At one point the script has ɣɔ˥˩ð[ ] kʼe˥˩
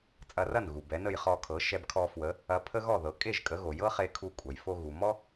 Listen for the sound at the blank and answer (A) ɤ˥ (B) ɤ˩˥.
B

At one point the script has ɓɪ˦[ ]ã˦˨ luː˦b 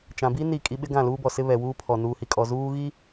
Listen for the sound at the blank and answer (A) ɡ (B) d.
A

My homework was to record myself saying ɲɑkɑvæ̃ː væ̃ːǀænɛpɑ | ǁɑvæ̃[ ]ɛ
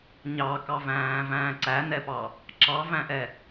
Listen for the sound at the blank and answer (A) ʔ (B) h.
A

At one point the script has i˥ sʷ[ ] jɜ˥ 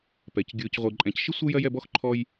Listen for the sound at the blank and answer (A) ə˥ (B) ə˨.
A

